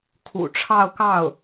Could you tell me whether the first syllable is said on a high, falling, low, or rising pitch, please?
low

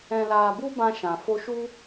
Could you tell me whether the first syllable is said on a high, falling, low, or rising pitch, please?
low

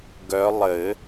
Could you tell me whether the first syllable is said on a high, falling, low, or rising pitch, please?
rising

